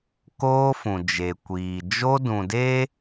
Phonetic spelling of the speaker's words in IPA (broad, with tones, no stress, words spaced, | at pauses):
koː˦fũ˨d͡ʒe˨ kʷiː˨ d͡ʒo˦dũ˨de˦